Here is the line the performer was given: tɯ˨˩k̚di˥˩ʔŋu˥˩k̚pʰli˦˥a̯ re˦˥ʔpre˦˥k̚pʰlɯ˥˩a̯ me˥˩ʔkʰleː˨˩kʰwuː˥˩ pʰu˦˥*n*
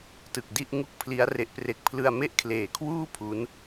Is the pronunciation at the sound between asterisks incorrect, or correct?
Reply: correct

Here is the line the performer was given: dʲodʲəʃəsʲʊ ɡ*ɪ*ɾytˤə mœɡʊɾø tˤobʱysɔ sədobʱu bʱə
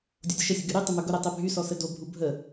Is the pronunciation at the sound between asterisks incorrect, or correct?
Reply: incorrect: y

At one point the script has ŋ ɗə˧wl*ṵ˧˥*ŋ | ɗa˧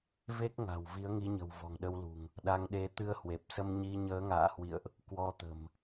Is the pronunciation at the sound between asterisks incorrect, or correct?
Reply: incorrect: ṳ˨˩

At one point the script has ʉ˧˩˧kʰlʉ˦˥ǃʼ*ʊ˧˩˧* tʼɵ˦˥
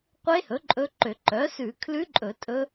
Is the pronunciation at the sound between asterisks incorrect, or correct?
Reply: incorrect: ɵ˧˩˧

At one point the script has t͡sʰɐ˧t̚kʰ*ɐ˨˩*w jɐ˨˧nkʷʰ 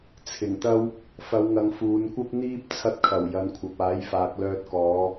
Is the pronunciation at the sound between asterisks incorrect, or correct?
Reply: correct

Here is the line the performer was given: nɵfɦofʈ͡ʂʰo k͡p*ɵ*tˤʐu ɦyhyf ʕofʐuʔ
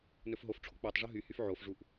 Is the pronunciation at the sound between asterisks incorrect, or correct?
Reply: incorrect: ø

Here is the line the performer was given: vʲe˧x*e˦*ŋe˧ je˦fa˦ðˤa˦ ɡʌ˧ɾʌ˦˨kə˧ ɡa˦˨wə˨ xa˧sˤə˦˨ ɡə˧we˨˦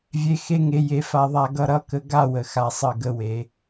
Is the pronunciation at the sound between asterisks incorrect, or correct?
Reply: correct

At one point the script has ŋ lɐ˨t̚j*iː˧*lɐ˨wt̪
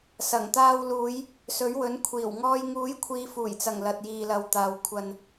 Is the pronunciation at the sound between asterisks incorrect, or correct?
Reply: incorrect: iː˨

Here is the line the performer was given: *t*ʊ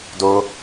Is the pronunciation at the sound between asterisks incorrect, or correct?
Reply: incorrect: d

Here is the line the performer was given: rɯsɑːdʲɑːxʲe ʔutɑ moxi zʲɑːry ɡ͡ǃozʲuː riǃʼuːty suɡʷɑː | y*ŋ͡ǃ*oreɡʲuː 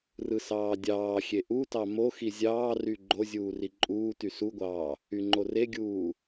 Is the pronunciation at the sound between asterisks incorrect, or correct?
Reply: correct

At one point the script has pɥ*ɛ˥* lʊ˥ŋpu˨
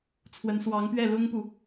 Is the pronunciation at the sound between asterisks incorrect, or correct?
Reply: incorrect: ɛ˥˩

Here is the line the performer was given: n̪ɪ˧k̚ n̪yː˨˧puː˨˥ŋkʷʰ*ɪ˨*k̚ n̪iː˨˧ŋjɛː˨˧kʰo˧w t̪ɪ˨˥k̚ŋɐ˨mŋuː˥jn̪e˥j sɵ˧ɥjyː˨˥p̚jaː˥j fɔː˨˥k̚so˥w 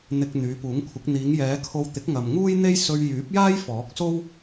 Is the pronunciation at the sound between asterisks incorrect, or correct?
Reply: incorrect: ɪ˨˥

